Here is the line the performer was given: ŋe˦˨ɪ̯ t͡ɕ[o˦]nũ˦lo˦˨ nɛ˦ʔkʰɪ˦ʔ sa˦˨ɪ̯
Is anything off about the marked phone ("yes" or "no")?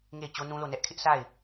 no